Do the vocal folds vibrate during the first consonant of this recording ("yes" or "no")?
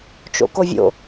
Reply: no